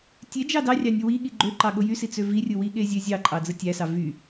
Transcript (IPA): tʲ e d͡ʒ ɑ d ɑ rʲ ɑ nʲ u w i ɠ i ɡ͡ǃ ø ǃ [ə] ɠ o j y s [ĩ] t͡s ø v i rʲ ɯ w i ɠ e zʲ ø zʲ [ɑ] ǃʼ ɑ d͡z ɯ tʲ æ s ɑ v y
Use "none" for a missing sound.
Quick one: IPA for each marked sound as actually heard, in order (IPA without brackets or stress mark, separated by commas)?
ɑ, i, ɑ